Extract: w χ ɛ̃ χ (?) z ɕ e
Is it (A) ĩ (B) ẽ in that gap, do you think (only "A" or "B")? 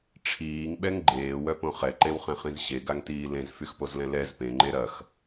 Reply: A